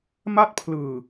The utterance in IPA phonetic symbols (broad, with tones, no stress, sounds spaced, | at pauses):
m a˥˩ t̚ pʰ l ɯː˨˩